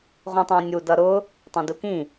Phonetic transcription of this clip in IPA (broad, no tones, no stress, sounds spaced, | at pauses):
ʁʷ ĩ tˤ æ̃ nʲ u d ʌ ɾ ʊ | tˤ ɑ̃ d u k ĩ